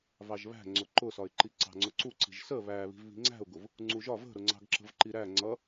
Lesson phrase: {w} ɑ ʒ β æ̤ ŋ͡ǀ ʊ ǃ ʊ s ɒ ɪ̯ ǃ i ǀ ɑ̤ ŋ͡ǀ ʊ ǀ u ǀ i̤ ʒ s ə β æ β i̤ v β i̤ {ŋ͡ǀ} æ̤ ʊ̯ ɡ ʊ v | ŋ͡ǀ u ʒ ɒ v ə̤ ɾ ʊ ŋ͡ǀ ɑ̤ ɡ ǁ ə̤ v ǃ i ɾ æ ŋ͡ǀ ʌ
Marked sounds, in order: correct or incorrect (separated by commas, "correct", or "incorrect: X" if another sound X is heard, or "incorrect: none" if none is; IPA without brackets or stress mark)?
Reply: incorrect: v, correct